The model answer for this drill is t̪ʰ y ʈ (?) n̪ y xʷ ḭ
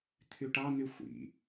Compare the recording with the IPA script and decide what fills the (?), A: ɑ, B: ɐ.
A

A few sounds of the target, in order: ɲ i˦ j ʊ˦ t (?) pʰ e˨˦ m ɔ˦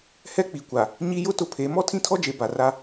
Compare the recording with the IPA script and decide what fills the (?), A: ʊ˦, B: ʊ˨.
A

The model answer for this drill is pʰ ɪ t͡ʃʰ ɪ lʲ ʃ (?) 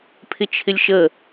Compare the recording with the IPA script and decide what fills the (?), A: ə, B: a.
A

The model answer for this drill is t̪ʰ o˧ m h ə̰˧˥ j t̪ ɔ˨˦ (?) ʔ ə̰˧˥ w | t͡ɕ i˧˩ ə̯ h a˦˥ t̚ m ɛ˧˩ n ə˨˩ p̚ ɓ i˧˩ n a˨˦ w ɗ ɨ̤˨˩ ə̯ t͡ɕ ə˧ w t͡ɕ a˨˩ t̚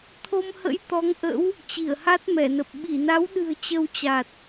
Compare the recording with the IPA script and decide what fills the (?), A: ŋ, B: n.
A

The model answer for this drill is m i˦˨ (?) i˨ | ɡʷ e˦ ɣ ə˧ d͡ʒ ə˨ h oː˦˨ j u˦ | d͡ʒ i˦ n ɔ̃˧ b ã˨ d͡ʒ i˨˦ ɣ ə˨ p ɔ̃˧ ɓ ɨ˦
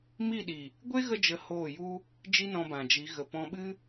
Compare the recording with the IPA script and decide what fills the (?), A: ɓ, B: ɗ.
B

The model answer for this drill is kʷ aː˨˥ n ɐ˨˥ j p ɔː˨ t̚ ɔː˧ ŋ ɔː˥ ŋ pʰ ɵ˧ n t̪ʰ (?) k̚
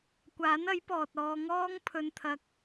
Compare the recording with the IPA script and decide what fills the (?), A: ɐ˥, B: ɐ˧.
B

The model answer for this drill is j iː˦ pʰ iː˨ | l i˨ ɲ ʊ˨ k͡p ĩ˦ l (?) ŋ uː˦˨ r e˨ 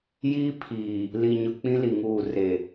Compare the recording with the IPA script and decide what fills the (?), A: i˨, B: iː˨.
A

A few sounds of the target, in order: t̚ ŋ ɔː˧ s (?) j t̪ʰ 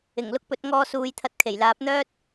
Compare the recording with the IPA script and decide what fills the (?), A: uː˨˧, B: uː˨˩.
A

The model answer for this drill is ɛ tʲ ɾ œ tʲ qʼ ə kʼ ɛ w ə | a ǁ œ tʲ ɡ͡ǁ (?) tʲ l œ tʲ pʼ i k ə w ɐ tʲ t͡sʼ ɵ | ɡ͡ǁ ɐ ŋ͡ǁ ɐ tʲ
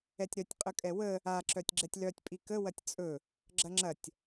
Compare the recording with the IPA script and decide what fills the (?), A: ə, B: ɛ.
B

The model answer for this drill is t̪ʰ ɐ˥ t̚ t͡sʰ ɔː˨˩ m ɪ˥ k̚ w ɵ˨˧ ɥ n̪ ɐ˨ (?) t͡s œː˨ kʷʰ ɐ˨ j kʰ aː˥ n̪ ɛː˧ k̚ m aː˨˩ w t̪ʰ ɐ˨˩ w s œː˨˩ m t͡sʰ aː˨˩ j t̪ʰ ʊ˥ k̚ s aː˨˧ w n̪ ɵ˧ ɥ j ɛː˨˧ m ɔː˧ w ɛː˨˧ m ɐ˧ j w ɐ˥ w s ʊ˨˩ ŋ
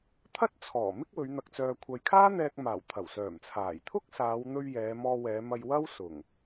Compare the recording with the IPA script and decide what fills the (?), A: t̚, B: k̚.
B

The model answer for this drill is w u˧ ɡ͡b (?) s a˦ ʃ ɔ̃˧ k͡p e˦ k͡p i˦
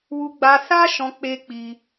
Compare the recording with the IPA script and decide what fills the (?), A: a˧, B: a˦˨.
A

